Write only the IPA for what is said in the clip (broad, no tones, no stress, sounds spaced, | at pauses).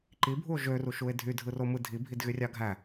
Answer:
ǃ i bʱ u o̯ ʒ ø r u ʃ u e̯ dʱ y dʱ ɯ r o m ɯ dʱ i bʱ i d ɣ y rʲ ɑ ɡʱ æ